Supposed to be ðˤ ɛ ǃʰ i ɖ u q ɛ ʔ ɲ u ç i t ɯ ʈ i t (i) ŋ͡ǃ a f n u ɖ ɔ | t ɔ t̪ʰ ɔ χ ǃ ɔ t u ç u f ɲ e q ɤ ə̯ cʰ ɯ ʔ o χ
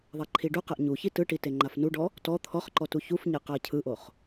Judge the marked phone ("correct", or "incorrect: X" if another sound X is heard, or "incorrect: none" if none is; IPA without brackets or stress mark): incorrect: e